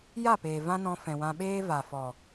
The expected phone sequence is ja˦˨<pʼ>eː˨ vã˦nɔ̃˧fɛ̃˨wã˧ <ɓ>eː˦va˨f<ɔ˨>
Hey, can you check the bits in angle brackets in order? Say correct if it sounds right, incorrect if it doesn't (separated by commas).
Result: incorrect, correct, correct